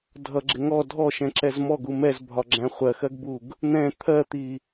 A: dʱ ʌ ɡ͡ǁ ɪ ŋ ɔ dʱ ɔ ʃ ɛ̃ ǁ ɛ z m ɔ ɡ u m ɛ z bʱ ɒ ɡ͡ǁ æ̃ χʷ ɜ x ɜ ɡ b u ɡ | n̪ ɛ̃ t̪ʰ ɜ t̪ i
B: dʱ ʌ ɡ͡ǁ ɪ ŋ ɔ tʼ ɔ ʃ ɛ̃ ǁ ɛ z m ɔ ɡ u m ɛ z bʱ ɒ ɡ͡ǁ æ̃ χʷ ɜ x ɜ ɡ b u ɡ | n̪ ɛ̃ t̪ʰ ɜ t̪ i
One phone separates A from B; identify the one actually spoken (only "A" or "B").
A